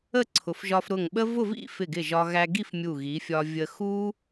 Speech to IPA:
ə˥˧ ǀʰ ʊ˩˧ f ʒ ɒ˧ f ɾ ʊ˧˩ ŋ ɓ ə˥ v ʊ˥˧ v ḭ˥˧ f ɪ˧˩ ɡ ɪ˧˩ ʒ ɒ˧ ɣ æ˧ ɡ i˥˧ f mʲ u˧˩ ɣ i˩˧ fʲ ɒ˧ vʲ ə˧ x u˥

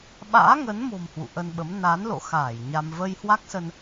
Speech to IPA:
ɓ a̰ː˧˥ ŋ ə˨˦ n m o̤˨˩ m h w ṵ˧˨ ʔ ə˧ n ɓ ə˨˦ m n a˨˦ n l o̰˧˨ x aː˧˩ j ɲ a˧ m v ə˧ j h w a˦˥ k̚ s ə˧ n

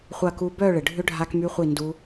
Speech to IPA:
χʷ ɐ˥˨ k u˦˥ b œː˥˨ ɭ ɪ˩ ɖʱ ʏ˦˥ ɖʱ a˦˥ k m y˦˥ χʷ i˥˨ n d u˦˥

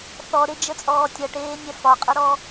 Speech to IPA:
θ ɔ ɾ e d͡ʒ ə t͡sʼ ɔː tʲ ʌ ʈ eː nʲ ɛ f ɒ qʼ ə ɾ ɔ

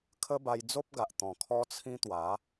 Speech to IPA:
kʰ ə˦ b a˧ j d͡z o˦ p̚ ɡ a˨ ʔ t̪ ɔ̃˨˩ kʰ ɔ˦ t͡sʰ ĩ˦ t̪ w a˨˦

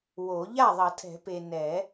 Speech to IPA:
w o˨˩˦ ʎ a˥˩ ðˤ ʌ˨˩˦ tʰ ɛ̤˨˩˦ p e˨ n ɛ˨˩˦

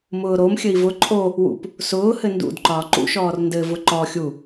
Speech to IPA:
m ʊː ɾ o m xʲ ɘ i̯ v ʊ ǃʼ o | w ṵ p | s ʊː h ɘ n d ṵ d ǃ ɒː ǃ ṵ ʃ ɔː r n d ɘ v ʊ ǃ ɔ xʲ u

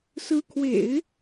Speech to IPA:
s ɹ̩˧˥ kʰ w ḛ˨˩˦ ɪ̯

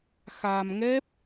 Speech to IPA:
x a˧ m ŋ ɛ˦˥ p̚

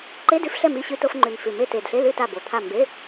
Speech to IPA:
ǃ e˧˥˧ d ʉ˧˥˧ f ɬ ɛ˦˨ m i˧˥˧ ɕ ʉ˧˥˧ t o˧˥˧ f ŋ͡ǃ ʉ˨˩ n f ʉ˨˩ m e˦˨ t e˨˩ d ɬ e˧˥˧ l ʉ˦˨ t a˦˨ b o˨˩ t̪ʰ a˦˨ m b e˧˥˧

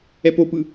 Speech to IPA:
ɛ p o p ɯ

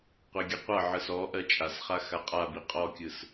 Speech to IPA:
qʷ e ɡʲ ʌ qʷ ʌ ʕ ɯ s ɔ ʔ ɜ t͡ʃʼ a s χ a x a qʼ a b i qʼ ɔ kʲ ɯ s

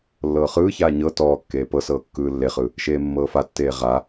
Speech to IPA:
lː ɤː χ ɯː ç aː ɲ ɤ t ɔː kː eː p ɤ s ɤː kː ɯː lː e χ ɯ | ʃ eː mː ɤː f a tː eː ʁ a

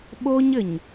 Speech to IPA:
ɓ o˦ ɲ ɘ˨ ɲ

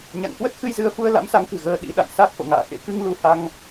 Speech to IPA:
ɲ a̰˧˨ ŋ k w ə˦˥ t̚ x ɨ˧ j z ɨ˨˦ ə̯ f u˧ ə̯ l a̰˧˥ m s a˨˦ ŋ k ɨ̤˨˩ ɣ əː˧ ɗ ḭ˧˥ ɗ a̰˧˨ n s a˦˥ k̚ f o̰˧˨ ŋ a̰ː˧˨ x ḛ˧˥ k ɨ˧ ŋ l u˧ h a˧ ŋ

